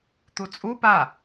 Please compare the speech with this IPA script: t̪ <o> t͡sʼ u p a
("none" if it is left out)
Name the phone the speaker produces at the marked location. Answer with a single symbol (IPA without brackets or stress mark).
u